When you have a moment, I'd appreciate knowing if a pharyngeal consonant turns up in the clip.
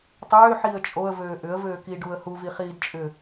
yes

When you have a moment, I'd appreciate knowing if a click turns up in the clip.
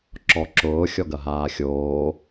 yes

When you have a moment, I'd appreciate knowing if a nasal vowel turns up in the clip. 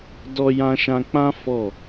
yes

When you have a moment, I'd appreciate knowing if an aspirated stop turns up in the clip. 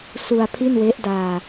yes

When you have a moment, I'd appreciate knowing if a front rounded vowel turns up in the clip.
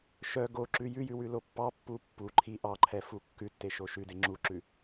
yes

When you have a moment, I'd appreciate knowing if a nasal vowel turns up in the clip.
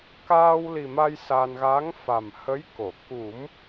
no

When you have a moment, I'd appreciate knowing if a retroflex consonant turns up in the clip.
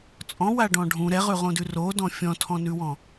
yes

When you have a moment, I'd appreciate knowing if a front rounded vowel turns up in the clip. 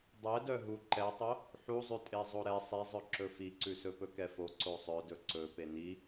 yes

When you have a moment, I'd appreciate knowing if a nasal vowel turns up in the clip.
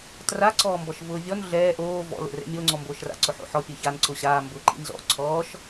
no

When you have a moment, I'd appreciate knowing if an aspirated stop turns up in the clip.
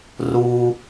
no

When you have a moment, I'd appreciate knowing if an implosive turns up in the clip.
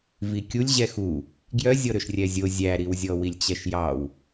no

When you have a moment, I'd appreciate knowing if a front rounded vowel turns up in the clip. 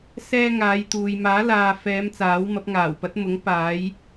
no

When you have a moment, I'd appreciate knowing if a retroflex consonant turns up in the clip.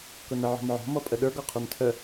no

